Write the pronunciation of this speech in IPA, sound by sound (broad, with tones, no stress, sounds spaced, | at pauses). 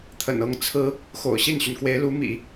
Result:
t̪ʰ ə̰˨˩ n ɤ˥˩ ŋ t͡sʰ ɹ̩˥ | x o̰˨˩ ʊ̯ ɕ i˥˩ n ɕ y˩ n k w e˧˥ ɪ̯ l u˧˥ m ḭ˨˩˦